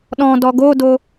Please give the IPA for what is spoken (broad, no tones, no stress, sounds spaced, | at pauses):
ɗ ɔ̃ d ɔ ɡ o d o